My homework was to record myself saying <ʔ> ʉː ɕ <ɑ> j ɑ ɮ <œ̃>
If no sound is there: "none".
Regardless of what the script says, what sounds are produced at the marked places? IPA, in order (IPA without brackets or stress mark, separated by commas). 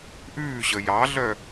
ʔ, ə, œ